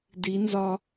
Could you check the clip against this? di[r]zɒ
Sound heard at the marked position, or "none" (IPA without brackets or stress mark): n